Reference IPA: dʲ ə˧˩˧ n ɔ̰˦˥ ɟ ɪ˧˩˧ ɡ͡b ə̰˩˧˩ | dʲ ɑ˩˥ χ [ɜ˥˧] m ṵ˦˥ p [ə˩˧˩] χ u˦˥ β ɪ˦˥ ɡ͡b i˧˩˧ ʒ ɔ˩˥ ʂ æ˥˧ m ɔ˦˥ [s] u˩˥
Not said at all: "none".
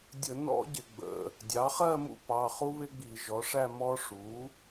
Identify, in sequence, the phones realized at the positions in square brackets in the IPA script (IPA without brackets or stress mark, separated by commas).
ɜ˥˧, ɑ˩˧˩, ʂ